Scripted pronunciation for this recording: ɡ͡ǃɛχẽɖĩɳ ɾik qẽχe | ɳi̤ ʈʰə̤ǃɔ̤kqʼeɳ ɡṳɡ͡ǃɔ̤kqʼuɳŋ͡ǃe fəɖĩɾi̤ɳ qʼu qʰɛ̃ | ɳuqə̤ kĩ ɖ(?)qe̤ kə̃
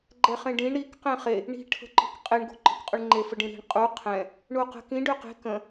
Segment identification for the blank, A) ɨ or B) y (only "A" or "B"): B